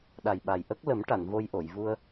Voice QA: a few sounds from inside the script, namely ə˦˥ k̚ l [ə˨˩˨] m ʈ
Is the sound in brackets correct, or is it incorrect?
incorrect